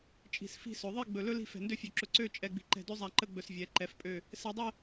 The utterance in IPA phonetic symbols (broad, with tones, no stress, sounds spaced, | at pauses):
t͡ʃʼ i̤˧˩ s f i̤˥˧ s ɵ˩˧ ðˤ i˥˧ ɡ͡b ɵ˧˩ l ɵ˥ l i̤˥˧ f ɛ̤˧˩ n d ø˥˧ fʲ ø˧˩ ǁ ɵ˧˩ ǀ ø˥˧ t͡ʃʼ ɛ˧ ɡ͡b i̤˧ ǃ ɛ̤˧˩ d ø˥ zˤ a˧˩ ǃ ə˥˧ ɡ͡b ɵ˧˩ s vʲ ɛ˩˧ ǃ ɛ˩˧ f pʼ ø˧˩ | s ɛ˧ dˤ ɛ˥˧